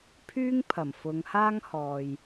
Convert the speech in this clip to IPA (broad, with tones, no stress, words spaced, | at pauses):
pʰyː˥ŋ pʰɐ˨˩m fʊ˨˧ŋhaː˥ŋhɔː˨j